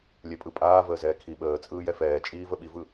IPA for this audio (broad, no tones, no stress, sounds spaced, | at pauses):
lʲ ɛ pʼ ɯ pʼ aː v əː z ɛː kʰ i ɓ əː t͡sʼ ɯː j ɛ f ɛː t͡ʃʼ iː v ə ɓ i v ɯ